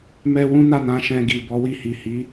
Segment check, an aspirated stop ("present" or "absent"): absent